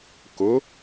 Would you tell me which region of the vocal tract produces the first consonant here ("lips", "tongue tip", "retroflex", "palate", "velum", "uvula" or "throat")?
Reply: velum